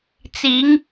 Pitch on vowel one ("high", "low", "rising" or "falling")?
rising